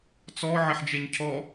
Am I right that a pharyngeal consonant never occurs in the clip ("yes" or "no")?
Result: no